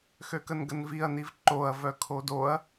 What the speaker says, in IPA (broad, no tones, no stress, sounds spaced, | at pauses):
x ø k ə n ɡ ə n v i ɐ̯ n i v ǃ o ɐ̯ v œ kʰ o d o ɐ̯